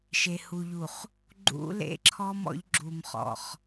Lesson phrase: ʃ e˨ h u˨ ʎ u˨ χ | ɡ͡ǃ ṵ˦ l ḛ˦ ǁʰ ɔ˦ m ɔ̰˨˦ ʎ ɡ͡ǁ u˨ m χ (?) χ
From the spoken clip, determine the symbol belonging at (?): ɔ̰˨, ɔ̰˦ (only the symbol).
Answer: ɔ̰˨